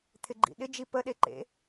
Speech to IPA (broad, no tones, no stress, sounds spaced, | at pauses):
t̪ʰ ɪ ɡ͡ǃ ḭ ɗ ɪ d͡ʒ i p ə ɗ e ǃ ḛ